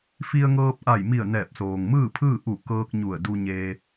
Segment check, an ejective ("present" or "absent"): absent